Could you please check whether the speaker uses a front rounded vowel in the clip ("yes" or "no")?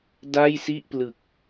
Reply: no